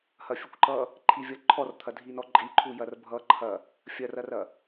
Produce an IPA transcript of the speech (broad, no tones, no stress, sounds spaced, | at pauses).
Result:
h ɐ fʲ ə kʷ ǃ ʌ | ǃʰ i vʲ ʌ ǃʰ ɔ r t̪ʰ ɐ dʱ i n ɔ ǃʼ i ǃʰ u j ɐ r bʱ ʌ ǃʰ ɐ | fʲ ɐ r ɐ r ɐ